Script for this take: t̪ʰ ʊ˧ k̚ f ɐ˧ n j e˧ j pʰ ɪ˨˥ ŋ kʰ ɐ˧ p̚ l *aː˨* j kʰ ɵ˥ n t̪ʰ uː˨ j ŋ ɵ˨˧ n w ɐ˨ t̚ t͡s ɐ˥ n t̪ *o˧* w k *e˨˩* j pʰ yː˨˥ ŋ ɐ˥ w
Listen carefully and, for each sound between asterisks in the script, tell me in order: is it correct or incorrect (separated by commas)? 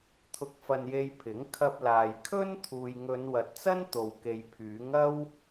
correct, incorrect, incorrect